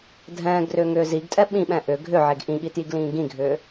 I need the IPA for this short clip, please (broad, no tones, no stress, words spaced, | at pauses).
dʱɛ̃ːɡrʏːŋʏː ziɡtʼɛ ɓĩɓɛ̃ ʔʏ ɡʱʏʕeɡ ʔĩɠitjiɡlĩː ɡĩɡʱʏː